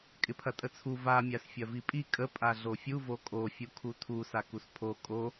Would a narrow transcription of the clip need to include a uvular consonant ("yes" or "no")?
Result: no